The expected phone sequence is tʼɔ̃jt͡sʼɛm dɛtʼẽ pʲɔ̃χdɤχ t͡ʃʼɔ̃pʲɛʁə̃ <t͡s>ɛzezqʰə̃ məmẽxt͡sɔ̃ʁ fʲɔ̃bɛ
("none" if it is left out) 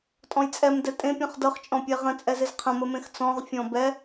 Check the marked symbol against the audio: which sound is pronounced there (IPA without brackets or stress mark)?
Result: t͡sʼ